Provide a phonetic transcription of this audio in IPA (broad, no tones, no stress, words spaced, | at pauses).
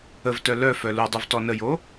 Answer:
əvtœ lœfœ ludˤuv tɔnəjo